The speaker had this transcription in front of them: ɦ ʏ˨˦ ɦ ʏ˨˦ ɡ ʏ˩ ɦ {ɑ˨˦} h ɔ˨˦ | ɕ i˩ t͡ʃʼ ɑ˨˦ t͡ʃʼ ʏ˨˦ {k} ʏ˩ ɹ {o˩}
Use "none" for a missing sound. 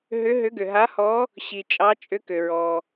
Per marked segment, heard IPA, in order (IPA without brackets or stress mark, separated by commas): a˨˦, k, ɔ˩